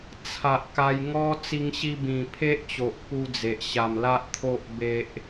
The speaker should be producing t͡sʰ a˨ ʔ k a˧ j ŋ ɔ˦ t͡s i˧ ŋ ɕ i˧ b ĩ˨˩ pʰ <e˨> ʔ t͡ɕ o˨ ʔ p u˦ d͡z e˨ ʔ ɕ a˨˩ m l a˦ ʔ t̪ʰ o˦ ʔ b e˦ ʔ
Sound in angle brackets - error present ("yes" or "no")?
yes